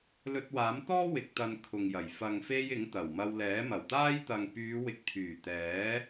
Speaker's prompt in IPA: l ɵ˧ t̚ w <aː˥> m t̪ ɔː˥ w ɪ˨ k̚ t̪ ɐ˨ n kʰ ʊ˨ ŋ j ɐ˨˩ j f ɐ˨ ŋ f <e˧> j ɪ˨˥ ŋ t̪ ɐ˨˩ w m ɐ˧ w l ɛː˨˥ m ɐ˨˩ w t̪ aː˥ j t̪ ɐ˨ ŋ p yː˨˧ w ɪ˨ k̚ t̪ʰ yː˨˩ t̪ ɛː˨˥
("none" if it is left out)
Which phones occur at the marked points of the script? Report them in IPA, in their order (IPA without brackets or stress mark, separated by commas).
aː˨˥, e˧